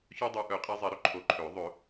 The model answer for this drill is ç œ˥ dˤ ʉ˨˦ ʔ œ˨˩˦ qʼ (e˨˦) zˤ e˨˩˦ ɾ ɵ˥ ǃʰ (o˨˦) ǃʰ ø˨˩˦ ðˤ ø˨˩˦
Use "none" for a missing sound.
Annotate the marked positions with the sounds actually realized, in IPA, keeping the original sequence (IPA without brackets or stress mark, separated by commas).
e˨˦, o˨˦